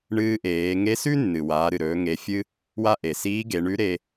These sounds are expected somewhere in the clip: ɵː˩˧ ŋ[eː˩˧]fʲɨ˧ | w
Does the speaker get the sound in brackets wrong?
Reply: yes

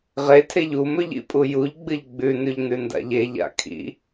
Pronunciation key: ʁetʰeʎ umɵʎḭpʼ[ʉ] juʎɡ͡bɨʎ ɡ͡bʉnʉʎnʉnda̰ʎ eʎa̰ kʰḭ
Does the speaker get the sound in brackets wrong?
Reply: yes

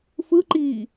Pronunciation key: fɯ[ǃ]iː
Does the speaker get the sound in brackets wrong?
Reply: no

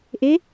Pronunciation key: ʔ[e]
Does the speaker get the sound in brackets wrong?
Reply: no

